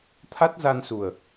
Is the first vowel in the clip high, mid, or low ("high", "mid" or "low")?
low